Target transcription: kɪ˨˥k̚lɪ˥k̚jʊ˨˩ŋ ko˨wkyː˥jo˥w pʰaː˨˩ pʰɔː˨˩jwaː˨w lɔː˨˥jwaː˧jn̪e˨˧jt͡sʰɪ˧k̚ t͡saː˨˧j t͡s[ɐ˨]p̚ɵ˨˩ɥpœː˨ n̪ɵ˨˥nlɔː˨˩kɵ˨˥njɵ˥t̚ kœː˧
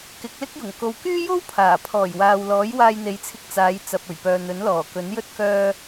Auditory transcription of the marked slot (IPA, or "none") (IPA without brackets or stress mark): ɐ˨